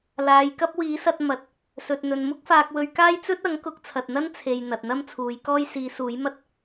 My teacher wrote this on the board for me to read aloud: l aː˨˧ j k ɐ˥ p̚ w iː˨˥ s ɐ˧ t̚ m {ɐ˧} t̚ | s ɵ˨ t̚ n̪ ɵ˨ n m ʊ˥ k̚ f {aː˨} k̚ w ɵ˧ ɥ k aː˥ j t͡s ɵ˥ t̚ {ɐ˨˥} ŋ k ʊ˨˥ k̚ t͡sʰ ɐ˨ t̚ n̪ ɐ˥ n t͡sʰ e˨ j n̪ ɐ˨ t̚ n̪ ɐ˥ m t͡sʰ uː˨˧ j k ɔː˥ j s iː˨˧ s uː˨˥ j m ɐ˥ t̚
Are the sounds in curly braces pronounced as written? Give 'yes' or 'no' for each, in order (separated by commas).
no, no, yes